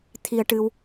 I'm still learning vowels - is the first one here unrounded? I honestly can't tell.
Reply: yes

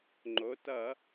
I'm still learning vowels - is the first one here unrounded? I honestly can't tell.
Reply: no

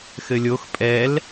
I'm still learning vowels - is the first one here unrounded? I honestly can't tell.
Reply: yes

